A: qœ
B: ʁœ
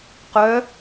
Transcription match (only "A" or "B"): A